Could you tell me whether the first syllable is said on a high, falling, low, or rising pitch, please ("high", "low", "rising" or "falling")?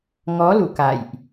rising